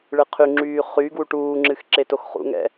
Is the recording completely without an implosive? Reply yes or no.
yes